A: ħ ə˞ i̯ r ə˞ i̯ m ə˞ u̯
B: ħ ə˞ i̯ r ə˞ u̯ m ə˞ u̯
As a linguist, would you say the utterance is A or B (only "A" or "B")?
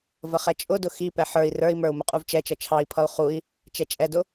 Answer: A